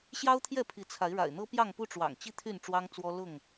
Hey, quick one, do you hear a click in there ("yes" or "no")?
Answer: no